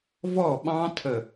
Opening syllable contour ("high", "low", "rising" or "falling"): falling